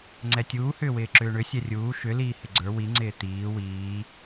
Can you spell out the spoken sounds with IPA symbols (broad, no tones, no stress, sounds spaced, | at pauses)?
ŋ͡ǀ ɛ tʲ uː h ʏː w ɪː ǁ ʏː ɳ ʏ sʲ ɛ rʲ uː ʃ ʏ l iː h ɪ ɡ͡ǀ ə˞ w i ŋ͡ǀ ɪː t̪ iː w iː